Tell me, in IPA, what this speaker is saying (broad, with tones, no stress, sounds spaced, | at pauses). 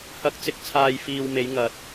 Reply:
h ɐ˨˥ k̚ t͡s ɪ˨ k̚ t͡sʰ aː˨ j f iː˧ w m e˨˧ j ŋ ɐ˨ t̚